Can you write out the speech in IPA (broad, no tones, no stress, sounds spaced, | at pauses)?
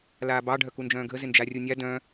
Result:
l aː b ɑ ɖʱ œ k u n d͡ʒ œ̃ː ɡʱ ə z ɪ n d͡ʒ a rʲ u nʲ a d œ̃